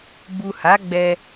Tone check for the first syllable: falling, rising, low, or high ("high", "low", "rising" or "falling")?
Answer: low